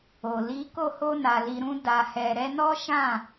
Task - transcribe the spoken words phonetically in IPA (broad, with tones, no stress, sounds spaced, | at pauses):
o˨ l i˨˦ k o˦˨ h o˧ n a˨ l i˨ ɾ ũ˧ d a˧ h ɛ˧ ɾ ɛ˧ n ɔ˦ ʃ ã˦˨